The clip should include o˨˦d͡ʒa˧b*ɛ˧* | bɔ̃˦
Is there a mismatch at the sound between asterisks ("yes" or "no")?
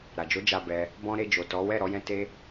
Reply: no